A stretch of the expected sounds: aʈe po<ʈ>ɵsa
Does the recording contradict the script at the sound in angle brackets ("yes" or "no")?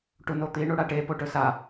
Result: no